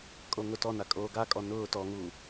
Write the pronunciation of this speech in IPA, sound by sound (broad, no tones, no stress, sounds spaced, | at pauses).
kʼ o ŋ ʊ t ɔ n a kʼ oː ɡ a kʼ ɔ n ʊː t ɔ ŋ uː